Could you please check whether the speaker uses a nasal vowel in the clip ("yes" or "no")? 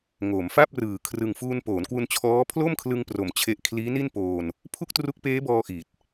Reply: no